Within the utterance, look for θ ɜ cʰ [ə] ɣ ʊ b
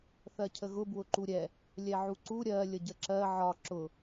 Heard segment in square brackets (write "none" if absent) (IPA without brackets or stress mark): ə